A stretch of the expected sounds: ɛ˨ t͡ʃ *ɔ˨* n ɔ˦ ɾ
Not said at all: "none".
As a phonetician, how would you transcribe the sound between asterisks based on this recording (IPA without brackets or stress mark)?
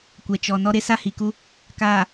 ɔ˨